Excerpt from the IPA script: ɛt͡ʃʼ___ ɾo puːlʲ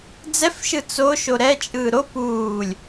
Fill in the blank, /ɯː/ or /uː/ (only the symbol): ɯː